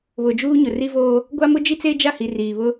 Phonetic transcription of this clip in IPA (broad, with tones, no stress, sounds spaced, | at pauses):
β ʊ˨ d͡ʒ uː˦ ɲ ʊ˨ r i˦ v oː˦ | ɡʷ a˦ m ʊ˦ d͡ʒ i˦ t͡s eː˦ d͡ʒ a˦˨ h i˨ r iː˨ β ʊ˦